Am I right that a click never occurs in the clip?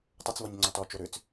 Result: no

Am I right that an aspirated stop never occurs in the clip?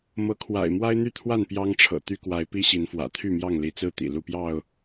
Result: no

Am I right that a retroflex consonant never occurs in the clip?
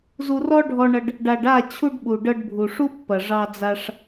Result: no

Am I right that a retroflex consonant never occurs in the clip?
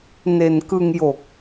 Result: yes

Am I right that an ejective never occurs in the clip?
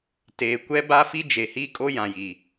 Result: no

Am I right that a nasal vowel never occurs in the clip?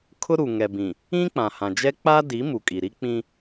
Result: no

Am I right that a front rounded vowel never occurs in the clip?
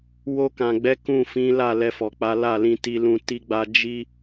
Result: yes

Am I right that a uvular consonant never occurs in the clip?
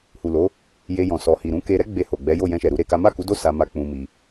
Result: yes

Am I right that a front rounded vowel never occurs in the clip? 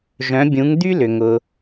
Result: no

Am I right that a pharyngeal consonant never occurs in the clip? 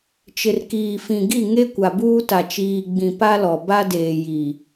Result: yes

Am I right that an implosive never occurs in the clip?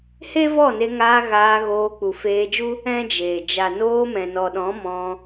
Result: no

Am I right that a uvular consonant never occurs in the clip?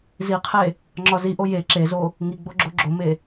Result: no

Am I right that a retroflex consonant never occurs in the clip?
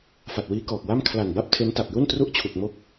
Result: yes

